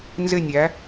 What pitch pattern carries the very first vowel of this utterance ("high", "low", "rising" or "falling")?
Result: falling